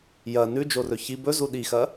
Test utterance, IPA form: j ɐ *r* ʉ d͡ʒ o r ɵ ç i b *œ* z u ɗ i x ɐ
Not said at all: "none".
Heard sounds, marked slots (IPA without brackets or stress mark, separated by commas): n, ɵ